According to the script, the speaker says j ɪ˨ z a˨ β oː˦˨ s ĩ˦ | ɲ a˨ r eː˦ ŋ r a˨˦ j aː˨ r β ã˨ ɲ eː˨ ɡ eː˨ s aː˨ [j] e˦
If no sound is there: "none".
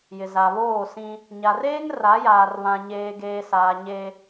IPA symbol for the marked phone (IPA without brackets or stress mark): ɲ